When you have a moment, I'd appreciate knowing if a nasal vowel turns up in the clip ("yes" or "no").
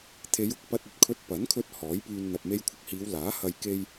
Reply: no